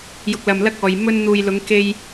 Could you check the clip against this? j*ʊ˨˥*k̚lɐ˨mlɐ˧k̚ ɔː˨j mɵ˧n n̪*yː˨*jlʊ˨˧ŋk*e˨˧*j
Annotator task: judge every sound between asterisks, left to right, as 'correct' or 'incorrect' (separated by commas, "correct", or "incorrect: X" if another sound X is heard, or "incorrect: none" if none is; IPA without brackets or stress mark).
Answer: incorrect: ʊ˨, incorrect: uː˨, incorrect: e˧